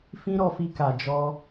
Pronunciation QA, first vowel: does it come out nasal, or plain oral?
nasal